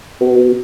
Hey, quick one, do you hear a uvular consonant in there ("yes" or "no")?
no